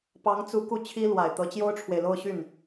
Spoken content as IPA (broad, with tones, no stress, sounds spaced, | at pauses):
p ɑ˧˥ ŋ t͡s u˧˥ k u˥˩ t͡ɕʰ i˥ l w a˨˩ ɪ̯ t̪ ɤ˧˥ t͡ɕ j o˥ ʊ̯ ʈ͡ʂʰ w e˨ ɪ̯ l o˥˧ ʊ̯ ɕ y˥˩ n